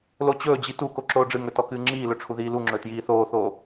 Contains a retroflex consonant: yes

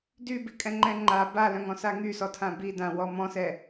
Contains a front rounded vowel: yes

